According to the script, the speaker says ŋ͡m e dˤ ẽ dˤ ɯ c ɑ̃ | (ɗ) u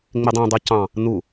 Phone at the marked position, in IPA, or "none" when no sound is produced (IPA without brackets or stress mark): n